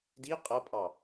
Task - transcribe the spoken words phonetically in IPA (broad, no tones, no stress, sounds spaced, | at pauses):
d i qʼ ʌ pʼ ɑ